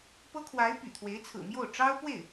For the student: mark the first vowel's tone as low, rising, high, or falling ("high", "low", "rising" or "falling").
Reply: high